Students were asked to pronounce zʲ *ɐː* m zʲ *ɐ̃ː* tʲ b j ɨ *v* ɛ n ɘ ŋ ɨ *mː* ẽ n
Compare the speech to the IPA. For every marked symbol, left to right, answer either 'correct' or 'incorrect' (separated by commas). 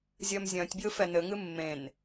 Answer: correct, correct, incorrect, correct